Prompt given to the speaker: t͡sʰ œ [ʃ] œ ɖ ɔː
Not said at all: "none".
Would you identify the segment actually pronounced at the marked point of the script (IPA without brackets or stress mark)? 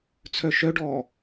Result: ʃ